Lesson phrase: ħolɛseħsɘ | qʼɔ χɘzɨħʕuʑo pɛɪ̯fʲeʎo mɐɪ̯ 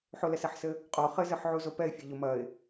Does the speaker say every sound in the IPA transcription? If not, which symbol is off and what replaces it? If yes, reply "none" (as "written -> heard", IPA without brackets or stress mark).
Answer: ʑ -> z